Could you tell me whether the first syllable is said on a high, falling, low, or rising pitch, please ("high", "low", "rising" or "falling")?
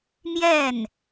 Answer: falling